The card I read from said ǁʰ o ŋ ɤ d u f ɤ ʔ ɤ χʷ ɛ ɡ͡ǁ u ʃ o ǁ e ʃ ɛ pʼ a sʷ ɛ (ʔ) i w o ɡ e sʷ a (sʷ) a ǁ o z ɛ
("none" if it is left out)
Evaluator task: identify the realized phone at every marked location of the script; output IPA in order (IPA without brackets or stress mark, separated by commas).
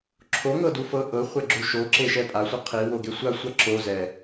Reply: qʰ, sʷ